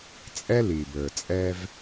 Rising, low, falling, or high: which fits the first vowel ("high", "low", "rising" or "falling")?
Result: high